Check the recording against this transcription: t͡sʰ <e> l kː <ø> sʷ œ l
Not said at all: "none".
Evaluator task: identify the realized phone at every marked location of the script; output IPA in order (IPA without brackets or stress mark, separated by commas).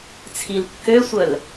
i, ø